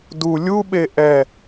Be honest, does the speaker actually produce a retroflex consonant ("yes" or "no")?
no